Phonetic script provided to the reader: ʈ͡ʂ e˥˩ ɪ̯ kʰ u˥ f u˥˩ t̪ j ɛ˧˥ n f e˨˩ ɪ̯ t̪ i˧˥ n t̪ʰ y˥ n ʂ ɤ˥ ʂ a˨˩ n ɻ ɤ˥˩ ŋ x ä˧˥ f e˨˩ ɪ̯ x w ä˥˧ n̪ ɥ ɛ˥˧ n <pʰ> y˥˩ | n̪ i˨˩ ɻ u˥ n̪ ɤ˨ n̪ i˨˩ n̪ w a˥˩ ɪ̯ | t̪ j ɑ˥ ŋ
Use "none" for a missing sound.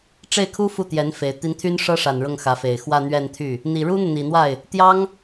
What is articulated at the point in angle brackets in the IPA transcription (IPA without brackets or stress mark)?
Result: t̪ʰ